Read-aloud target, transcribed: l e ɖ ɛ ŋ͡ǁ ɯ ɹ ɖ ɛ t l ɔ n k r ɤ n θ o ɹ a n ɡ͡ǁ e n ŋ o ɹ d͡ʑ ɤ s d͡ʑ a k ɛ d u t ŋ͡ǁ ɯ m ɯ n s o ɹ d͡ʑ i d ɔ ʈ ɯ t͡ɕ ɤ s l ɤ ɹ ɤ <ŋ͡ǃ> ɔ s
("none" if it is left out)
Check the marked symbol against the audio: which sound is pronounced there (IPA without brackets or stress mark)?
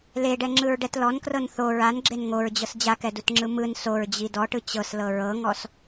ŋ